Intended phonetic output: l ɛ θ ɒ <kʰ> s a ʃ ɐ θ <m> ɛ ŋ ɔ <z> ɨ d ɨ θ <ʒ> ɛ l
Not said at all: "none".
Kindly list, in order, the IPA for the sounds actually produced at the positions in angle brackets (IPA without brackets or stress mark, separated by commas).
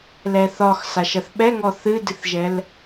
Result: x, ɓ, θ, ʒ